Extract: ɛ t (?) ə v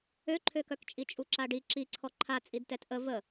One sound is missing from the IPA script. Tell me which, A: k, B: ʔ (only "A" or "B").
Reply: B